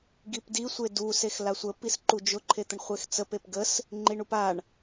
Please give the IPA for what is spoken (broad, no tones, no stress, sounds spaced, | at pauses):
ɡ i p d i sʷ e d u s e x l a sʷ ə p i s ǃ u d͡ʒ ʊ ǃʰ e t̪ ə ɳ χʷ e x t͡s ə p e p ɡ ə s | ŋ͡ǃ i ɳ u p a ɳ